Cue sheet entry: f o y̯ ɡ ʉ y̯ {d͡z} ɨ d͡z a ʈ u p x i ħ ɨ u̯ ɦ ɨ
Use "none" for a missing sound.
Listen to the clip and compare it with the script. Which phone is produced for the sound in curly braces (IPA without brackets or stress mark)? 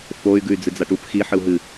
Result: d͡z